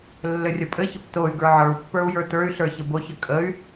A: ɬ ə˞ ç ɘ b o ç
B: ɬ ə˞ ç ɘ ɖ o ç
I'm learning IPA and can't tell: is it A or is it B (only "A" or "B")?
A